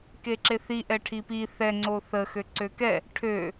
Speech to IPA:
k e ǁ e θ i ʔ ɛ ʈʰ i p i θ ɛ ŋ͡ǀ o θ ə x ø ǀ ø k ɛ | ʈʰ ø

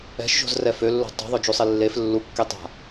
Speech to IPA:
ɛ̤ ʃ ʒ o̤ z r ɛ f ø lː o̤ tˤ o̤ ðˤ o d͡ʒ u sˤ e lː e f lː u kː e tˤ a̤

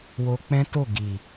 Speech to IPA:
w o˧ k͡p ɛ̃˦ t o˦˨ ɡ i˨

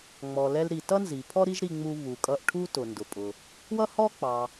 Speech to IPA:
ŋ͡m ɔ˩ l ɛ˧ l ɾ i˩ t ʌ˥ n z i˩ pʰ ɔ˥ ɾ i˥ ʒ ɾ i˧ ŋ͡m u˧ β u˩ kʼ ʌ˧ ʔ ʈʰ u˥ t ʊ˩ n d ʊ˩ pʼ ʊ˩ | w ʌ˥ h ɔ˥ k͡p ɑ˩

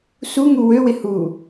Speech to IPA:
s u ŋ u w ø w ɪ h u

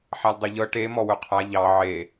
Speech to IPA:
ħ a l dˤ e ʎ ɤ ʈ e m ɔ w ɵ qʰ a ʎ ɑ ʕ e

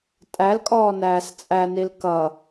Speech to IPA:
tʼ æ l kʼ ɔː n æː s t͡sʼ æ n i l k ʌ

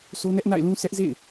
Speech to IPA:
s o˦ n ɛ˦ ʔ n a̰˦˨ ɪ̯ l ũ˦ sʰ ɛ˦ ʔ z ḛ˦˨ ɪ̯

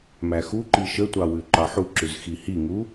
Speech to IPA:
m æ x u ǃ i ʃ ə tʷ ɑ w ʉ ǃ ɑ ħ u ǁ ʉ z x i h i ŋ u

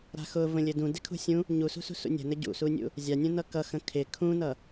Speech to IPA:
ɾ a̤ x ʊ v ə̃ lʲ ɘ d ũ d ɪ kʰ ṳ sʲ ũ | ɲ u s ṳ s ṳ s ṵ nʲ ə̤ n ɘ ɟ ṵ s u nʲ ṵ | zʲ a nʲ ũ n ʌ k ʌ x ə̃ kʰ ɪ kʰ ũ n ʌ

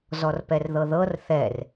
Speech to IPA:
z ɔ r p ɛ r ð ɤ ð ɤ r θ ɛ r

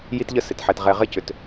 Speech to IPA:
j i˦ t ʎ ə˦ s ɪ˨ t ħ ɛ˨ t ʁ ɛ˨ ʁ ɪ˦ c ʏ˨ t

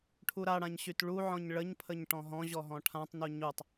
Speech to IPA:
ʈʰ u ɾ a ɽ ã ɲ ɕ y t ɭ u ʕ ɔ̃ ɲ ɭ ə ɲ pʰ ə ɲ ʈ ɔ̃ ɦ ɔ̃ ʑ ɔ ɦ ɔ̃ ʈʰ ã tˤ n u ɲ u tˤ

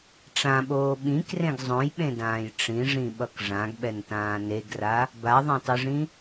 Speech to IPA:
ʈ͡ʂ ã ɓ oː ɓ ĩ k r ẽ ɡ zˤ õ j ɓ ẽ d ãː j ʈ͡ʂ ĩ ʐ ĩ ɓ ʌ k ʐ ã ɡ ɓ ɛ n t ãː n e ɡ r a | b a ðˤ ɛ̃ tˤ ɯ ʐ ĩ

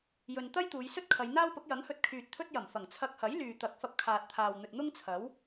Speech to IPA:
j ɵ˧ n t̪ ɐ˥ j t̪ uː˨˧ j s ɵ˥ t̚ kʰ ɐ˨˧ j n̪ aː˥ w p ʊ˨˥ k̚ j ɐ˨˥ ŋ h ɵ˧ t̚ kʰ yː˨ t̚ t̪ʰ ɵ˥ t̚ j ɐ˨˩ m f ɐ˨˩ ŋ t͡sʰ ɐ˧ k̚ h ɐ˨˥ j l yː˨ t̪ ɐ˨˥ k̚ f ɐ˧ p̚ kʰ aː˨ t̚ t̪ʰ aː˨ w n̪ ɵ˨ t̚ n̪ ʊ˥ ŋ t͡sʰ ɐ˨˥ w

